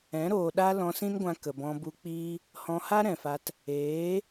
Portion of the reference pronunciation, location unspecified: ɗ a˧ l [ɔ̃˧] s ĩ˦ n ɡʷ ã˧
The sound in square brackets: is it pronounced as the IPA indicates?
yes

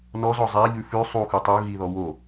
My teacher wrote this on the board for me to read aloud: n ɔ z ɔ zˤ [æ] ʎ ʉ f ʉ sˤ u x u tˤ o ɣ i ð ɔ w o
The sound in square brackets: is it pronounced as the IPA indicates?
yes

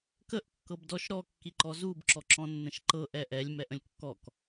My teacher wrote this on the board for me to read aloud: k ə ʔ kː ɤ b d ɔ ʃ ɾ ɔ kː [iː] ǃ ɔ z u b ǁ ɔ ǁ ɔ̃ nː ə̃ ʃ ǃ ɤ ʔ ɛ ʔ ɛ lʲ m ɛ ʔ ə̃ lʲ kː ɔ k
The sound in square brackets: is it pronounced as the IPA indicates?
no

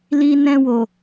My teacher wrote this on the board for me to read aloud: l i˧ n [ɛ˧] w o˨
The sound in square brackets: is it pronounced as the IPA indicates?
no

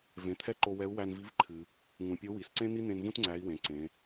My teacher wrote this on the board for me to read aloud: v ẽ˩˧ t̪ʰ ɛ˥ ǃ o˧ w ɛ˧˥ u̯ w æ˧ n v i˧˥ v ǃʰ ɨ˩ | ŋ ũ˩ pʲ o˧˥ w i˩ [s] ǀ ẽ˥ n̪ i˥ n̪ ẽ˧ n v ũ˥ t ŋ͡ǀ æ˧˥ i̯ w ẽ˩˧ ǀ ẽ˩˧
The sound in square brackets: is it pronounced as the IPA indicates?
yes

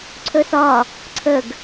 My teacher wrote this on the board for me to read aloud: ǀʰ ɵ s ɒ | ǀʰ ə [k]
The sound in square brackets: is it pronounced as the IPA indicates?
no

